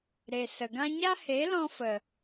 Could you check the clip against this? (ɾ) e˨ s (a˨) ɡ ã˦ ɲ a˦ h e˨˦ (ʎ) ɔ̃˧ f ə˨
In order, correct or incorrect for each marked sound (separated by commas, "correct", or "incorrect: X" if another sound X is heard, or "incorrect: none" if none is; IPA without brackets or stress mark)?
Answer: correct, incorrect: ə˨, incorrect: l